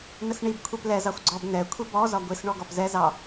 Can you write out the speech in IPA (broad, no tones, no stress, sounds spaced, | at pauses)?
n ə s ɳ i b kʷʰ i p l ɛ z ɑ xʷ ɡ͡ǀ ɔ b n ɛ kʷʰ i b ɔ z ɒ ɡʷ i s ɳ ɔ ɡ ɔ p z ɛ z ɑ